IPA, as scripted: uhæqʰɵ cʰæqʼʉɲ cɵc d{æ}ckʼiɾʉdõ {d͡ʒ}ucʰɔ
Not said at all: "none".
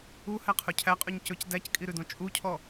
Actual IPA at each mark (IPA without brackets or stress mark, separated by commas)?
æ, t͡ʃʼ